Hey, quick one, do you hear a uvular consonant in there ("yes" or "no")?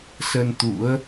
no